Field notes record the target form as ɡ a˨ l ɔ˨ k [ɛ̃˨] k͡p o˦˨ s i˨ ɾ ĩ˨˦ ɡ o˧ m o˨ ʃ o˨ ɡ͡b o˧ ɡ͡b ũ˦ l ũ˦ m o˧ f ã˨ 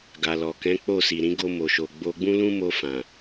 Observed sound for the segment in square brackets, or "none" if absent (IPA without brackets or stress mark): ɛ̃˨˦